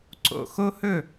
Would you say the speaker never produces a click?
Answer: no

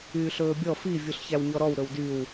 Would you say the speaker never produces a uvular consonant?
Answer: yes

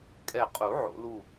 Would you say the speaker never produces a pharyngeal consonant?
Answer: no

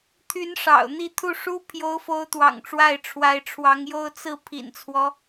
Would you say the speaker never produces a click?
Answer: yes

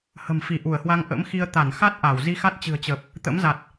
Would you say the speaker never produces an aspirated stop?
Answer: yes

